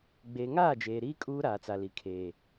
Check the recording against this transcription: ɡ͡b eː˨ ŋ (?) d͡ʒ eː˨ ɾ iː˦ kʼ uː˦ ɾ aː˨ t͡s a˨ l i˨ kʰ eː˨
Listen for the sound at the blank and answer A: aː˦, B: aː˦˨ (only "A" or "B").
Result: B